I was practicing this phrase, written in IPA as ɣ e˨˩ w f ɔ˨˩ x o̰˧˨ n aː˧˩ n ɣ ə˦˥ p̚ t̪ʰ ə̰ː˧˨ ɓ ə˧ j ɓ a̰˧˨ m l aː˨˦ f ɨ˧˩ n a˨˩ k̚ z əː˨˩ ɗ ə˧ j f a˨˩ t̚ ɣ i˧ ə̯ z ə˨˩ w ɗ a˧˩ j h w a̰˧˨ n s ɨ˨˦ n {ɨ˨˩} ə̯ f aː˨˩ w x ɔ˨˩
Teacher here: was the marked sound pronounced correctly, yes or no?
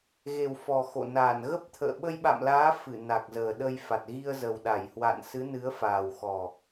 no